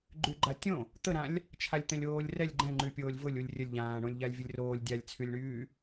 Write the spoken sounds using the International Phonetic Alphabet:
ɡ͡ǃ y ɡ͡ǃ a tʲ õ | t̪ ə ɾ ã lʲ | t͡ʃʰ a lʲ t̪ ɛ̃ lʲ oː lʲ r ɛ lʲ ɡ͡ǃ ɛ̃ ŋ͡ǃ y pʲ oː lʲ v ʊ lʲ u lʲ rʲ ə lʲ ʎ ãː ɳ õ lʲ ʎ a lʲ vʲ ʊ lʲ r oː lʲ dʲ a lʲ t͡sʰ y lʲ ɳ yː

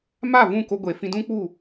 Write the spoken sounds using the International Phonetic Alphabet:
m a˦˨ v ũ˦˨ k o˧ ɡʷ e˨ f ĩ˧ d ũ˦ k͡p u˦˨

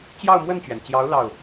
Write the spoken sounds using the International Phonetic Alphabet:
t͡ɕ j ɑ˥˧ ʊ̯ m w ə˥˩ n t͡ɕ ɥ ɛ˩ n t͡ɕ j ɑ˧˥ ʊ̯ l ɑ˥˩ ʊ̯

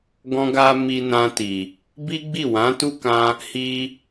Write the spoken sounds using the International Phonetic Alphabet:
ɡ ɔ̃˧ ɡ a˧ m i˧ n ã˧ t i˨ | b i˦ ɡ͡b i˦˨ w ã˨˦ t u˦ k ã˧ | h i˧

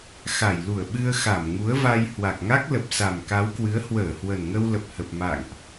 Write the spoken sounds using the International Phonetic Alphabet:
x a˧˩ j l u˧˩ ə̯ ɓ ɨ˧ ə̯ x a˧˩ m ŋ u˨˦ ə̯ v a˧ j h w a˨˩ k̚ ŋ a˦˥ k̚ l ə˨˩ p̚ s a˨˩ m k a˨˦ w k w ɨ˨˦ ə̯ h w əː˧˩ h w ə˨˩ n ŋ ə˧ w l ə˨˩ p̚ h ə˨˩ p̚ m a̰˧˨ ŋ ʔ

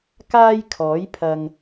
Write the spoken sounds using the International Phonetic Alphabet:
k aː˥ j kʰ ɔː˨˥ j pʰ ɐ˨ ŋ

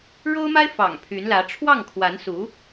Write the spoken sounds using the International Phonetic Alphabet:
ɻ o˥ ʊ̯ m a˥ ɪ̯ f ɑ̰˨˩ ŋ pʰ y˧˥ n l ä˧˥ ʈ͡ʂʰ w ɑ˥˩ ŋ kʰ w a˧˥ n s u˧˥

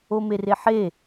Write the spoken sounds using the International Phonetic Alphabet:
o m e r e ħ e

